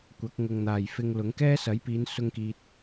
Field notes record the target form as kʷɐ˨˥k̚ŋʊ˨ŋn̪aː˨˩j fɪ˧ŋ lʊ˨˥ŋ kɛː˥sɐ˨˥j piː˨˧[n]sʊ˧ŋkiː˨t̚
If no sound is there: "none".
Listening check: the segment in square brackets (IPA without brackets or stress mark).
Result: n